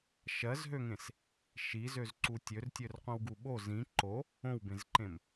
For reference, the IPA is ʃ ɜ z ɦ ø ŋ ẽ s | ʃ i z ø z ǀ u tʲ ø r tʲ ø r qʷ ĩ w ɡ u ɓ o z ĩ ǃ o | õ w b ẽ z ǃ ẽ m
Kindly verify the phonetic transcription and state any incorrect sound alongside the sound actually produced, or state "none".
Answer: none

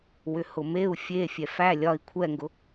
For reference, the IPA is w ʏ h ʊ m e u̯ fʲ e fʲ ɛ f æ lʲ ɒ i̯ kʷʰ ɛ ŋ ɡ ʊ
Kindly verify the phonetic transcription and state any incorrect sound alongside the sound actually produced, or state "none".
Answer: none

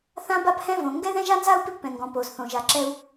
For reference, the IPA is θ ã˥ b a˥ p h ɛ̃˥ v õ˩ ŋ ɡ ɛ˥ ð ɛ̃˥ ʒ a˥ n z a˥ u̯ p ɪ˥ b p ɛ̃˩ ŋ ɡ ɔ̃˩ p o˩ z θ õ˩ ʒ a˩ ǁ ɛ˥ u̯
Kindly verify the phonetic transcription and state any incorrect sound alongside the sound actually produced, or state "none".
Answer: none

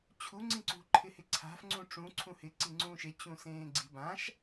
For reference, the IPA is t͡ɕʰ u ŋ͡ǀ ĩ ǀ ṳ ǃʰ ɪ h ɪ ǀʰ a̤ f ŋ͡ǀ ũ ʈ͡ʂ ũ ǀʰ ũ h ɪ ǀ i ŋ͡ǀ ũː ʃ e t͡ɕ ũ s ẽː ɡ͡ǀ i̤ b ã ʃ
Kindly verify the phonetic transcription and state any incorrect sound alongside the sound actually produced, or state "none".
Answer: none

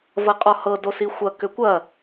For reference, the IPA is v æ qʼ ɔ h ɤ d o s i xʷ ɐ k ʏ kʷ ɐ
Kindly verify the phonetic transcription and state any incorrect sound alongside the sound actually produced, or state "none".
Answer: æ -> ɐ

